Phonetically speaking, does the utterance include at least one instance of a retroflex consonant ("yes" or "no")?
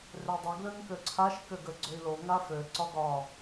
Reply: no